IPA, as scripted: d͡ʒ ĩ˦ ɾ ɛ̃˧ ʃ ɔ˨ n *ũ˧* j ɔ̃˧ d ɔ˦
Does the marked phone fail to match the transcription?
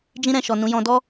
yes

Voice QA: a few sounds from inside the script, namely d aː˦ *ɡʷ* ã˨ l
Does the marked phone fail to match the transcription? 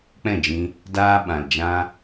yes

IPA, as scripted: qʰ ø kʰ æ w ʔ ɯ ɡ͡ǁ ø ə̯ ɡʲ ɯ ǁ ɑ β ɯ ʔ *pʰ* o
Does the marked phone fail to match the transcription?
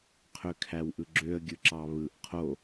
yes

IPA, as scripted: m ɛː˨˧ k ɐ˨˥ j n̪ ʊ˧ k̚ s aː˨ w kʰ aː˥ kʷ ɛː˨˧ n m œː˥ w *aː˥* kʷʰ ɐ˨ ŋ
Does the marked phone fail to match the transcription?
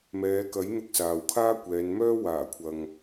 yes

